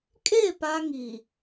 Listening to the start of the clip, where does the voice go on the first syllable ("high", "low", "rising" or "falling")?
falling